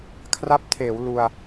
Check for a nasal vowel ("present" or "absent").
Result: absent